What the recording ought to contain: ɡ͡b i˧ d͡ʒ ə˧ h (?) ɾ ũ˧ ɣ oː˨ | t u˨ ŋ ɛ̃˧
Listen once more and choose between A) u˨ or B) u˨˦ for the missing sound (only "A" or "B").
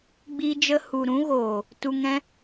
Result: A